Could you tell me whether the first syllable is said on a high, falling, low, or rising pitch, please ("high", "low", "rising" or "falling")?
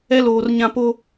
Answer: high